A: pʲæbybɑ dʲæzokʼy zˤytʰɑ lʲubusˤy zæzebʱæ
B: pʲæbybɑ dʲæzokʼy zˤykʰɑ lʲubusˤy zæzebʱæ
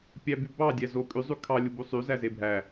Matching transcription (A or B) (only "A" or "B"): B